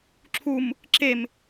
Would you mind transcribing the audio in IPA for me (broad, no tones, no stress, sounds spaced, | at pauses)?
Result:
ǁʰ u m | ǁ e m